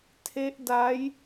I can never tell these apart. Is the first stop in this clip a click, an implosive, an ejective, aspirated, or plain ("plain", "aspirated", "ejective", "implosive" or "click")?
aspirated